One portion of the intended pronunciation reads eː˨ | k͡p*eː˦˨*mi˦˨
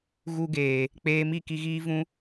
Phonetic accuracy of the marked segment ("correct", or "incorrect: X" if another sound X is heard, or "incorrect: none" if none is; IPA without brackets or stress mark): incorrect: eː˧